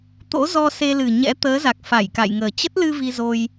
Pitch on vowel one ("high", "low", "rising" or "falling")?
rising